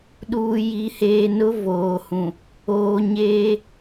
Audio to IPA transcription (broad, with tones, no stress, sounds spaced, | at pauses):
ɗ uː˨ j i˨ h eː˨ n ʊ˦ v oː˨ h ũ˨ | oː˨ ɲ eː˦